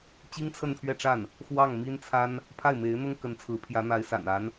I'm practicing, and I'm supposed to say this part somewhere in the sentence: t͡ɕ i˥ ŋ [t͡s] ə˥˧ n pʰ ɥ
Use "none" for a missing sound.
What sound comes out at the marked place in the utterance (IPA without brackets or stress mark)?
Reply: t͡sʰ